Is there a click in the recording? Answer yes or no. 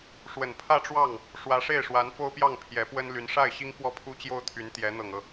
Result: no